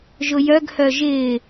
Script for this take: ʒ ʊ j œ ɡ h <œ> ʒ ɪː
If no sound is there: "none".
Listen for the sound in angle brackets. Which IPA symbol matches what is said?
œ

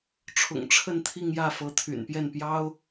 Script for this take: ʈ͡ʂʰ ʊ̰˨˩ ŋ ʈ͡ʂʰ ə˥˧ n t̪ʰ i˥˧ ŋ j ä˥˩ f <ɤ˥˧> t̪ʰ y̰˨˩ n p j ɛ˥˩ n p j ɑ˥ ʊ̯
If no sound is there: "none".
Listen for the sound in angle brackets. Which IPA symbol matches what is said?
ɤ˧˥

